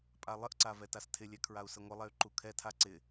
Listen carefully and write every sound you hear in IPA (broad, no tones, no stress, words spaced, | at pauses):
pʼalˠəʔǀa vɛtastʰɪlʲɛ kʰɹau̯səŋʷəlˠɛy̯ ǃukʰɛtʰa ǀɪ